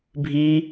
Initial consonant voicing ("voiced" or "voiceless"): voiced